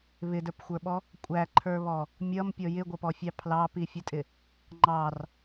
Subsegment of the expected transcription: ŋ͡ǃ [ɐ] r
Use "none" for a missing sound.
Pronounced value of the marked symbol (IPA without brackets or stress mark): ɑ